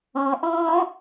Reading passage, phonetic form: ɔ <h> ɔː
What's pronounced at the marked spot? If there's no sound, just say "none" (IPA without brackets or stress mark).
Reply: ʔ